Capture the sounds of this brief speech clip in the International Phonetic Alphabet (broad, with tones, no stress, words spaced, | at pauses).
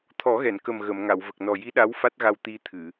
t̪ʰɔ˨˩˦ɣɛ˨˩˨nkə˨˩m ɣə˨˩˨mŋa˨˩˨wvə˨˩k̚ nɔ˨˩ji˧˥ ɗa˧˥wfa˦˥t̚ɣa˧w t̪i˧t̪ʰɨ˨˩˨